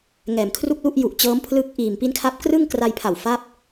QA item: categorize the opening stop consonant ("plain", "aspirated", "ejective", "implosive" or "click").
aspirated